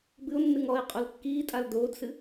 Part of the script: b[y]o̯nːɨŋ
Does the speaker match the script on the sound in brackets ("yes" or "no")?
no